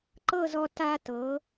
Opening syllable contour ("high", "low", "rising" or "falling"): falling